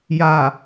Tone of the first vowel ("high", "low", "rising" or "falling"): low